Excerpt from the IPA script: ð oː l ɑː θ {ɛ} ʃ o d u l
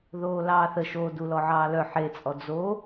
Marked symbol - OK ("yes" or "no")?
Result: no